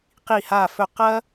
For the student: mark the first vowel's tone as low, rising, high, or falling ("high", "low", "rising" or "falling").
falling